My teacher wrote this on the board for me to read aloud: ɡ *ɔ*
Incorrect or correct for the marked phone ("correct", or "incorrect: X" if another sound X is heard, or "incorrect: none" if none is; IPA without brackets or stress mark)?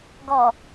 correct